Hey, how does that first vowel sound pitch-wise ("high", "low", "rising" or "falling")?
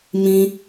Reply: high